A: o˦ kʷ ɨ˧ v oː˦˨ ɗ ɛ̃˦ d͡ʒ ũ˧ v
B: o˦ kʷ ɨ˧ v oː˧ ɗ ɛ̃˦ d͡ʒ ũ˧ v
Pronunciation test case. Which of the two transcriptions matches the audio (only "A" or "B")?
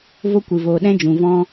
B